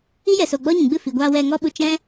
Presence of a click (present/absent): absent